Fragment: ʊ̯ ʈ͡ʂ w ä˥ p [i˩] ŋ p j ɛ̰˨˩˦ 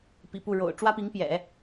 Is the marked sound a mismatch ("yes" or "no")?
yes